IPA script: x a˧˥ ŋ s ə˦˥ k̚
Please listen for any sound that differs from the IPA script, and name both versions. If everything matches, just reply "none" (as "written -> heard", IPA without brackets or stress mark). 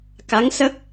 x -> k